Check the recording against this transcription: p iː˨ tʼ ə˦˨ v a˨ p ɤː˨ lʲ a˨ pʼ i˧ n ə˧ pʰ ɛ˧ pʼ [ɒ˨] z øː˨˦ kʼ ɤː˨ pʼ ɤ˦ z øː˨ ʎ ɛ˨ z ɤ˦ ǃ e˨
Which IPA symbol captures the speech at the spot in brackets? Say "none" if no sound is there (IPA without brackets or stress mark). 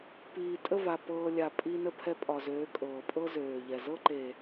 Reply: ɒ˨